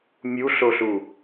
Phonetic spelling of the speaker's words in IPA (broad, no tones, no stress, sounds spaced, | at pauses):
mʲ u ɬ o ɬ u